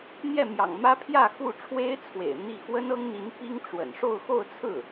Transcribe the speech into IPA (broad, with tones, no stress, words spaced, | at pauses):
n̪jɛ˥˩mjɑ̰˨˩ŋmä˥ pʰjä˥˧xu˥˩ʈ͡ʂʰwe˥ɪ̯t͡sʰwḛ˨˩ɪ̯ n̪i˥˩ xwə˥nɤ˥ŋn̪i˧˥n pi˥ŋʈ͡ʂwə̰˨˩n ʂo˥˧ʊ̯xo˥˧ʊ̯t͡sʰɹ̩˥˩